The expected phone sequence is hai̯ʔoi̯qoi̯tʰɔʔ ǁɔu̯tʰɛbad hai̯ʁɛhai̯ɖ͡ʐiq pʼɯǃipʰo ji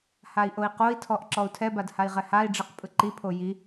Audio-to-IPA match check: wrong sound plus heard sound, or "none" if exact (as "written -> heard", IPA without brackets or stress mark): none